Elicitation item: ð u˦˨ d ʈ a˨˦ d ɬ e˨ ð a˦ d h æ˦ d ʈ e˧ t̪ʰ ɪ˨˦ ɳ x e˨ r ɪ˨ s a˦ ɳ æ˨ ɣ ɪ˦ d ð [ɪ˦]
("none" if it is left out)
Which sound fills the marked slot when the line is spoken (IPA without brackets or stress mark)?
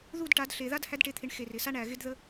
ə˦